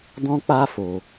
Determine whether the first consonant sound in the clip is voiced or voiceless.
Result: voiced